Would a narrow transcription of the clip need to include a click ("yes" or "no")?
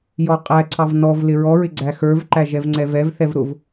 yes